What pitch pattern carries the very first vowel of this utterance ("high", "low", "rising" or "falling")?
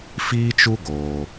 high